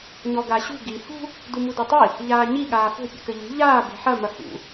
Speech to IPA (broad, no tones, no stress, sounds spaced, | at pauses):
ɲ ɔ ɡ a ɕ ṳ ɡ i h ṳ | d u m u d u tˤ i | ʎ aː ɲ i ɠ aː f o̤ pʲ ṵ k ɘ ʎ ṳ ʎ aː b e̤ ħ ɐ m ɐ h ṵ